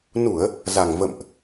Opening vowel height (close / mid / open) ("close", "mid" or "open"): close